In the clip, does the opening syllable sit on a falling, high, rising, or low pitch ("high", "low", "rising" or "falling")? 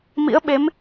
rising